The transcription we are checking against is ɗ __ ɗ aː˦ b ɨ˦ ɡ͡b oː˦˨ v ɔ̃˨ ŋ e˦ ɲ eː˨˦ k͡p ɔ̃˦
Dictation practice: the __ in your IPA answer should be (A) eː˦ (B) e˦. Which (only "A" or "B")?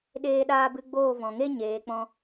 A